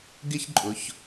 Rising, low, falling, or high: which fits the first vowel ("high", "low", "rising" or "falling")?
high